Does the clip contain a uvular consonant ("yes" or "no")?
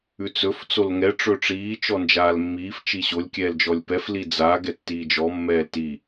no